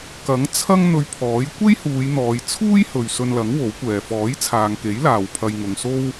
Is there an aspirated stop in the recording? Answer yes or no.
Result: yes